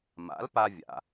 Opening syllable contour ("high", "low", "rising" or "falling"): rising